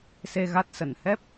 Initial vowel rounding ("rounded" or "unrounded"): unrounded